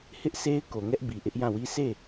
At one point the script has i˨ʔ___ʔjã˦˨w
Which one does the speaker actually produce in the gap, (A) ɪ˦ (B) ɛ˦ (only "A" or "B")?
A